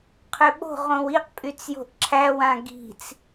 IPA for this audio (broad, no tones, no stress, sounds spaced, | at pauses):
qʰ ø ɓ o̤ ʁ õ w i q pʼ y t͡s j o̤ ʔ ǁʰ æ w ã ɡ i̤ t͡s